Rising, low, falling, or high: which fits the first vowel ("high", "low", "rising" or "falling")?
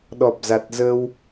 low